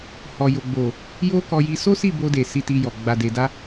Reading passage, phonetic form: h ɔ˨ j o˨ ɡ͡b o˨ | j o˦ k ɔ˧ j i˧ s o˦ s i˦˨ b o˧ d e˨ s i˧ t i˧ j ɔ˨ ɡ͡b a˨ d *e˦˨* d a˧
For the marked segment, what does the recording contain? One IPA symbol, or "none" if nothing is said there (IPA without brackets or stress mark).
e˨